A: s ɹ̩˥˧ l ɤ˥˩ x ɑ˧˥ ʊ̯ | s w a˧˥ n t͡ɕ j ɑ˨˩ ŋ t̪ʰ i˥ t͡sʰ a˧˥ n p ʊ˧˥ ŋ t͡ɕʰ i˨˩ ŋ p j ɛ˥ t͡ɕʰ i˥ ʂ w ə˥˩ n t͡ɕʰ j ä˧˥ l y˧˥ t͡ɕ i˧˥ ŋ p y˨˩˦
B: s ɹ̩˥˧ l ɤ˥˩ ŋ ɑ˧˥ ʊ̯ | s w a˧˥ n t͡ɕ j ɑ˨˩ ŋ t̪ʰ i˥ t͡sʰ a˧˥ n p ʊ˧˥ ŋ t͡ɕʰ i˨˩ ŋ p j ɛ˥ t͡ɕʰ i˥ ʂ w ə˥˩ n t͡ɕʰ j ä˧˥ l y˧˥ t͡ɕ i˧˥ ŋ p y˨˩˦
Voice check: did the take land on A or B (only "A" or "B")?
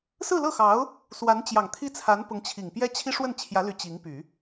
A